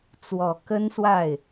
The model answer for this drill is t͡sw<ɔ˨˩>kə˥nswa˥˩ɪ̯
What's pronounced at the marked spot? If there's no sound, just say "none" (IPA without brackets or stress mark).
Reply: ɔ˨˩